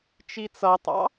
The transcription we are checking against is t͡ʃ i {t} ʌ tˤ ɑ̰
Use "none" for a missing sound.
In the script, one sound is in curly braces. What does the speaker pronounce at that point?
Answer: t͡s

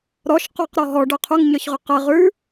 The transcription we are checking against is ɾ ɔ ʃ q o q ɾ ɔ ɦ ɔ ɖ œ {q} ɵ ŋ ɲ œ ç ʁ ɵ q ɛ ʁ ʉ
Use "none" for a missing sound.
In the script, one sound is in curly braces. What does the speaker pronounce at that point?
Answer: qʰ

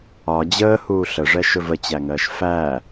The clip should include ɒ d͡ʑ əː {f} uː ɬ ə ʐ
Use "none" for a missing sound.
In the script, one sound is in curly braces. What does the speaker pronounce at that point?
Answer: h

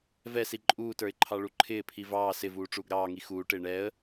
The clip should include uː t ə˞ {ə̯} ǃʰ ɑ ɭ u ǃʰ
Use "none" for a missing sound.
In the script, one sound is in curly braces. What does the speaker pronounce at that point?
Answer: ɪ̯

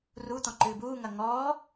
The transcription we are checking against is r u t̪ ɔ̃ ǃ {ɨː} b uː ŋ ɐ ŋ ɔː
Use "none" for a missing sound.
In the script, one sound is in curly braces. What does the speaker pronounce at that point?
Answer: ɨː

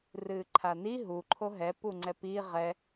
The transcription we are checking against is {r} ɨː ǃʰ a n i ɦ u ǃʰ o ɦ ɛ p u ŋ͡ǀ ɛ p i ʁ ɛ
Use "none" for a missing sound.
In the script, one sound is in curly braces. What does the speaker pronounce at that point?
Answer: r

